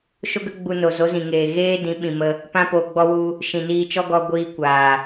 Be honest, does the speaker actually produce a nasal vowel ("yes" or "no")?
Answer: yes